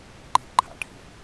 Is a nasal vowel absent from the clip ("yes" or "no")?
no